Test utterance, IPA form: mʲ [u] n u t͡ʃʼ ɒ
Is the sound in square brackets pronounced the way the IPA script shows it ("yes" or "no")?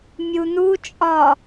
yes